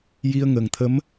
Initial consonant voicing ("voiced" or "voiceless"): voiced